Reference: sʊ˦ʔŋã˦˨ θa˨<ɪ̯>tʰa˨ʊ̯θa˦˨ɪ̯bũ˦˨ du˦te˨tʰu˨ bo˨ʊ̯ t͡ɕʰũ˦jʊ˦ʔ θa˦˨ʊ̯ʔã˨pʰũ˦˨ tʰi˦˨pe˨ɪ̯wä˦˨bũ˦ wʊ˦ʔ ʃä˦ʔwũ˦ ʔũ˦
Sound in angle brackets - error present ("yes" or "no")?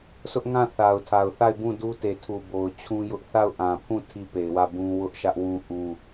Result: yes